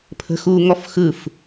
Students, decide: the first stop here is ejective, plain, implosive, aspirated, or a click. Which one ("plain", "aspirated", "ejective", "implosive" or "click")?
aspirated